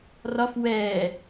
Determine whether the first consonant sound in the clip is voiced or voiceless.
voiced